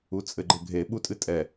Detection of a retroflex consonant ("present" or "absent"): absent